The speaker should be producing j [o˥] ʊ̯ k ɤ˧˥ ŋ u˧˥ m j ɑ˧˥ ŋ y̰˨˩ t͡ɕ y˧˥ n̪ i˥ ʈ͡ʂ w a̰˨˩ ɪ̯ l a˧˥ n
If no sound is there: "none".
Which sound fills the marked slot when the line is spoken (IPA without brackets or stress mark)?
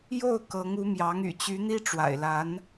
o˥˩